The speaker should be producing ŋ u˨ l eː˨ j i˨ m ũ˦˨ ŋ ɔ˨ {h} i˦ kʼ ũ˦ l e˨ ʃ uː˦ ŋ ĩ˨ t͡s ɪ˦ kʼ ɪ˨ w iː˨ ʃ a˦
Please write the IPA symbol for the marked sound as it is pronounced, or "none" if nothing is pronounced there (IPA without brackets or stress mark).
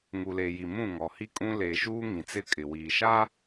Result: h